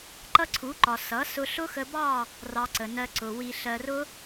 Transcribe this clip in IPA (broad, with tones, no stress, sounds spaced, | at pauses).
ǃ ʌ˦ ǀʰ u˨˦ ǃ ɒ˨ s ʌ˨˦ s ʊ˧ ɬ ʊ˦ x ə˧ b ɑ˦˨ | r ɑ˧ ǀ ə˨ n ɜ˧ ǀ ʊ˨ w i˨ ɬ ɜ˨ r ʊ˧